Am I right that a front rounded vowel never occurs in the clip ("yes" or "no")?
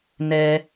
yes